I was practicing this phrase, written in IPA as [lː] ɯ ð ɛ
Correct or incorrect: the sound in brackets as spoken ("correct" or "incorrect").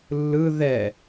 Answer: correct